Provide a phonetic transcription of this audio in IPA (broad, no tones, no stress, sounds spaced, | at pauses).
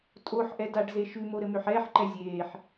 tʼ o ħ ʔ ɛ d a ɖ z e ʃ ʉ m o ɾ ɘ m ø ħ ɛː ħ ǃ ɛ zʲ eː ħ